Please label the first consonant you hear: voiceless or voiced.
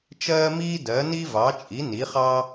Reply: voiceless